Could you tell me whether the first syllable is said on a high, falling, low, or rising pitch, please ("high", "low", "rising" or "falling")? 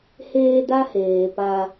high